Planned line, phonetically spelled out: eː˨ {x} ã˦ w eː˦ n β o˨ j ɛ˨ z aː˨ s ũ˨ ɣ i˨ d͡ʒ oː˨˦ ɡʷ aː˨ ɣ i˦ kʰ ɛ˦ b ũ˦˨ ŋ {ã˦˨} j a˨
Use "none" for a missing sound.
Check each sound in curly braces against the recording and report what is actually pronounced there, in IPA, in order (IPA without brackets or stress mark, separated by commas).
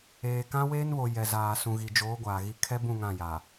k, ã˦˨